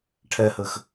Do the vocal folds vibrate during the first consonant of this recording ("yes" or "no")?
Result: no